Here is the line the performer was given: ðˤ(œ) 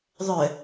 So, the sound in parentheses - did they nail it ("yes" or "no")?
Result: yes